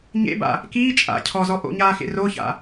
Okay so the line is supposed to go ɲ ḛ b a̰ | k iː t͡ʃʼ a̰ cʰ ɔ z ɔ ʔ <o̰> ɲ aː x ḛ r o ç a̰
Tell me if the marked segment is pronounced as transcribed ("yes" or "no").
yes